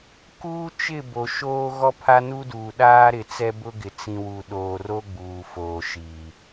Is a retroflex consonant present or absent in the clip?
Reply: absent